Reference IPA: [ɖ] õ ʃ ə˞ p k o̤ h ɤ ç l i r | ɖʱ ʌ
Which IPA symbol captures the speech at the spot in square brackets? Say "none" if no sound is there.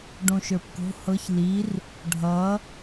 ɖ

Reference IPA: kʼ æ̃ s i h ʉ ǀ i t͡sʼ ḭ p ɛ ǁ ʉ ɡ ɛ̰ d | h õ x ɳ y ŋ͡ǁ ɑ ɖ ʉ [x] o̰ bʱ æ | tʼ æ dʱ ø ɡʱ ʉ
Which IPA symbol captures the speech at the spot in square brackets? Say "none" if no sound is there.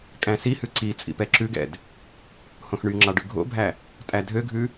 ɡʱ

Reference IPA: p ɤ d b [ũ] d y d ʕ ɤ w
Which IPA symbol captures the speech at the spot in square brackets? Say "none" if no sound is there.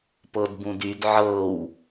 ũ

